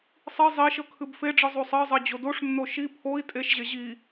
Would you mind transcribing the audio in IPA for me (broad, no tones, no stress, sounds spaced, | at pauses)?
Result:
sˤ i zˤ i ʃ ɤ kʰ ɨ b f e ɖ͡ʐ ɨ zˤ o sˤ ɜ zˤ ɜ d͡ʑ o d o ʂ nː o ʃ i pʰ o i̯ tʼ e ʃ ʑ e ʑ i